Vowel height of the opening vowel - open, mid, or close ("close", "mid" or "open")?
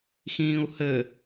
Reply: close